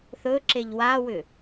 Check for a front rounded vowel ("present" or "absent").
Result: present